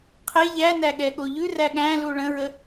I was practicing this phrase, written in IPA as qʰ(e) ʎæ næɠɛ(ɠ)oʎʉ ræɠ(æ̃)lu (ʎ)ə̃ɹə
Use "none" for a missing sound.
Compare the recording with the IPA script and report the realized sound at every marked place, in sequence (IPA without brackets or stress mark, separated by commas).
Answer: e, ɠ, æ̃, ɭ